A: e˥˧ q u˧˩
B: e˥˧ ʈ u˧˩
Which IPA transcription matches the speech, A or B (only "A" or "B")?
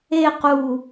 A